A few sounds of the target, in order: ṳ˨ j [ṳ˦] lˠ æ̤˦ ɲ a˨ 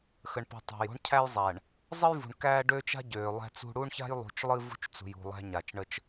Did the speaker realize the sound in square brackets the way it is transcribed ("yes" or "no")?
no